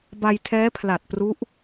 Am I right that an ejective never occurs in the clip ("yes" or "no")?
yes